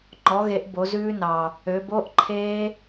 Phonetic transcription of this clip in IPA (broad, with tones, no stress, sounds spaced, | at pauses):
ŋ͡ǃ ɔ˩˥ ɣ e˩˥ ʔ b o˩˥ z ʉː˦˥ n ɑ˨˩ | ø˩˧ b o˧˥˧ ʔ ǃʰ eː˦˥